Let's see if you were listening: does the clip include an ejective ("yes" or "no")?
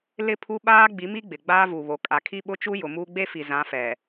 yes